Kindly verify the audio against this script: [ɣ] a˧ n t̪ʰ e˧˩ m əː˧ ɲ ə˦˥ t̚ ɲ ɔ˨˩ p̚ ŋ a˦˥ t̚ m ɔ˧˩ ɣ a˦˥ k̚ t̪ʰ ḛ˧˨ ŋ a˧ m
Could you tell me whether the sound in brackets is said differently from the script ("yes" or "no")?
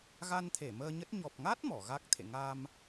no